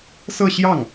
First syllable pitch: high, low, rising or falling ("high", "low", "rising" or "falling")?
falling